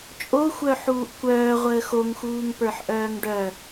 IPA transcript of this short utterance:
t͡ʃʼ o xʷ œ ħ uː ʔ kʷ œː ʁʷ əː x o ŋ x uː ŋ p ə˞ ħ ʔ œː ŋ ɖ œ

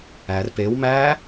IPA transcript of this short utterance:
æ r p e w m æ

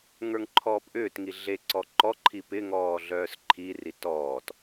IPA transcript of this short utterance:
ŋ ə˞ ŋ ǃʰ ɔː p ʔ ʏː t ŋ i ɮ e ǀ ɔ ǃ ɔ ǃʰ i p ɪ ŋ ɔː ɮ œː s ǃʰ i r i t ɔː t

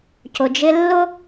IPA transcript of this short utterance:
c ʊ˩ d͡ʒ ɪ˦ lː ʊ˥

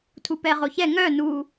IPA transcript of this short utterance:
tʰ u p ɛ ʁ o ç ɛ ŋ œ n u

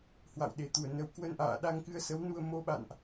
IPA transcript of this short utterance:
h w a̰˧˨ w ɗ e˧˩ t̪ u˧˩ ə̯ n ə˨˦ w k w ə˧ n ʔ a̰ː˧˨ ɗ a˧ ŋ k ɨ˧ ə̯ s ə˨˦ w n u˧ ə̯ m o˧ ɓ a̰˧˨ n ʔ

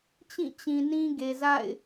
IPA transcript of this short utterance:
t͡ɕ ĩ˦˨ t͡ɕ ĩ˨ n ĩ˦ ɡ e˨ z a̰˦˨ ɪ̯

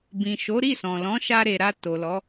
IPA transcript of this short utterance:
b ĩ˨ ʃ o˨˦ ɾ i˦˨ s ɔ̃˨ l ɔ̃˨˦ ʃ a˧ ɾ e˨ ɾ a˧ t o˨ l ɔ˨˦

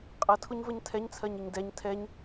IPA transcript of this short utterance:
qʼ ʌ tʰ ʊ ɲ v ə ɲ tʰ ɛ ɲ t͡sʰ ɜ ɲ ɪ ɲ d ɛ ɲ tʰ ɛ ɲ

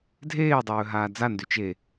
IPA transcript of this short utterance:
dʱ eː dˤ ɵː ɦ aː d͡z a n d y t͡ʃ e

